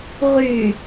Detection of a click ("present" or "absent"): absent